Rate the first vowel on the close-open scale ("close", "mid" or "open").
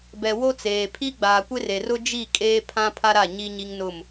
mid